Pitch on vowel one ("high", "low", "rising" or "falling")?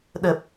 low